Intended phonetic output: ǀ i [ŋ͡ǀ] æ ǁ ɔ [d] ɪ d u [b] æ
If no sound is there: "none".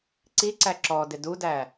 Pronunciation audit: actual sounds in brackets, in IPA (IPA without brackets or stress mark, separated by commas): ǀ, d, d